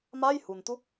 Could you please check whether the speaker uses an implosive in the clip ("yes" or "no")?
no